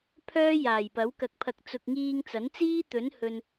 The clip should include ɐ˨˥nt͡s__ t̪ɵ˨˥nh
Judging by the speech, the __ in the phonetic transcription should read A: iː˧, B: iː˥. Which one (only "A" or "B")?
B